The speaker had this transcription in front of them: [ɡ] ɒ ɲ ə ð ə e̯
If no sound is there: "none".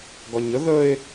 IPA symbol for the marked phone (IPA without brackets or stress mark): ɡ